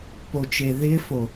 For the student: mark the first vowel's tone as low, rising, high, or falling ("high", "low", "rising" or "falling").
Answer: low